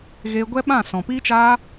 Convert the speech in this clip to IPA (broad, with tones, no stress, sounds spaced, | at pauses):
ɣ eː˧ ɡʷ ɛ˦ ɓ ã˦˨ s ɔ̃˨ p iː˦ t͡ʃ aː˦